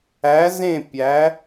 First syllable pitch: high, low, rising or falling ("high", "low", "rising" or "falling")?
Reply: rising